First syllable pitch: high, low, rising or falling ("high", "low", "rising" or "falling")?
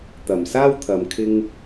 low